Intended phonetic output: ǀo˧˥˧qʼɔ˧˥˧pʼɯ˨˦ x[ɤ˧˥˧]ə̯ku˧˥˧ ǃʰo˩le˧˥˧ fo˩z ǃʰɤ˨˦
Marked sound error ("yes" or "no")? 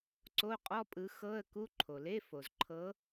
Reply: no